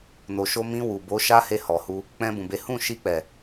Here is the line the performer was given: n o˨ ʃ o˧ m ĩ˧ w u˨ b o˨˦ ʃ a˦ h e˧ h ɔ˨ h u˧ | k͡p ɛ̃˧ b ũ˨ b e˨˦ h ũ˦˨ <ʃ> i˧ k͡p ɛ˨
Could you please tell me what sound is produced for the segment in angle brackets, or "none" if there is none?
ʃ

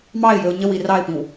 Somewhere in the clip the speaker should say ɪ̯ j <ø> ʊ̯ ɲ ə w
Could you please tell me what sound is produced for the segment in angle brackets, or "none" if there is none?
ø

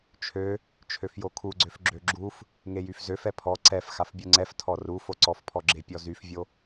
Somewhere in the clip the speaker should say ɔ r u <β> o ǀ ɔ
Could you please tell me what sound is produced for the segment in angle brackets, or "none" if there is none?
f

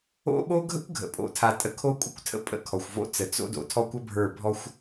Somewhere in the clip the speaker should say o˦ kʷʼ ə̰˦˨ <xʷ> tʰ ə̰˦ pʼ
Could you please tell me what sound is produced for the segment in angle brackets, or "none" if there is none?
kʷ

